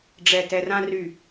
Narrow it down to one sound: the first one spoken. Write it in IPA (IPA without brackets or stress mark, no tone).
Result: ɖ͡ʐ